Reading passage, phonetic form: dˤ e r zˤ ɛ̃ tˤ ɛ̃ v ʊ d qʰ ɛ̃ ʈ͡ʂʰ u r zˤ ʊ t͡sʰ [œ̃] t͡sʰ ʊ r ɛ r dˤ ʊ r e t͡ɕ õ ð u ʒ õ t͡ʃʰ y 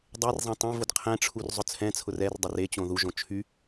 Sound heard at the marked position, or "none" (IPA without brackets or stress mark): ɛ̃